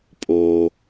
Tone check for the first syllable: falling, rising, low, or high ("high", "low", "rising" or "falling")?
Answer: low